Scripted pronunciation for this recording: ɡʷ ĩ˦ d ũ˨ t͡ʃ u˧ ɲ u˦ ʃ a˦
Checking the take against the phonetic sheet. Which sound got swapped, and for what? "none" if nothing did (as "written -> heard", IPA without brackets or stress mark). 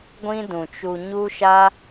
none